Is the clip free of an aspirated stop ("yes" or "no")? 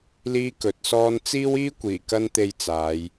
yes